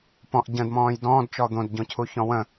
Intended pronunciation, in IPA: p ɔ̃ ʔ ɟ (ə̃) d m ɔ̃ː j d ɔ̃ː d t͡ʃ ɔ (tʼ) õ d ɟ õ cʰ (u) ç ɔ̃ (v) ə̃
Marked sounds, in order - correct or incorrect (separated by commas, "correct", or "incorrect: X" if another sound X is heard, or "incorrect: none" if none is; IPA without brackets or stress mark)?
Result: correct, incorrect: d̪, correct, incorrect: w